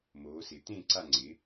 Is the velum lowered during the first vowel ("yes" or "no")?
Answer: no